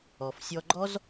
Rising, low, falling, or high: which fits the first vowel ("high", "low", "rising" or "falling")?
low